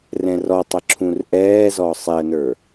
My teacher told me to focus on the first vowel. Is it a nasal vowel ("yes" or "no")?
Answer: yes